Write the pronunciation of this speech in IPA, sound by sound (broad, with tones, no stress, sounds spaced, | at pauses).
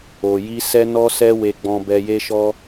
o˨ j i˧ s ɛ˧ n ɔ˧ s ɛ˧ w e˨ ɡ͡b ɔ̃˨ b ɛ˧ j e˦ ʃ ɔ˦